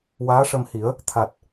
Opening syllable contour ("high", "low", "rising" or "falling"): rising